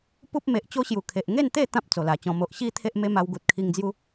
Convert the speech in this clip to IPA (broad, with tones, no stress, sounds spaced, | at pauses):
p u˦ p̚ m e˨ ʔ t͡ɕ o˦ ɕ j u˨˩ kʰ e˨ ʔ ŋ e˥˧ n t̪ e˥˧ t̪ ã˦ p̚ t͡s o˨˩ l a˨˩ t͡ɕ ɔ̃˧ m o˨ ʔ ɕ i˦ t̪ʰ e˦ ʔ m e˦ m a˧ w ɡ u˨ t̚ kʰ i˧ ŋ d͡z j u˦